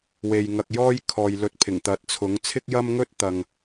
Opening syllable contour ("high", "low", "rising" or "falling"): low